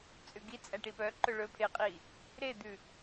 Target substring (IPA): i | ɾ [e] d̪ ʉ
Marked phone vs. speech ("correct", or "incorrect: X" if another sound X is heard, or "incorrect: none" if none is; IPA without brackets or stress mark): correct